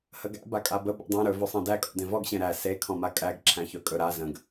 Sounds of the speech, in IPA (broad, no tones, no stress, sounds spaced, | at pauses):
h ə ɡ æ̰ b a kʼ a b ə b ḛ dˤ ẽ ɾ ɵ v ø sˤ ẽ d æ kʼ ɔ̰ d ẽ v ɔ ɡ ɕ ẽ ɾ æ s e kʰ ɔ̃ m a kʼ æ ɡ ǁʰ æ̃ ç ɵ kʼ ɵ ɾ a z ə̃ ɡ